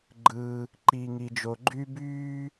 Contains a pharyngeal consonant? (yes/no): no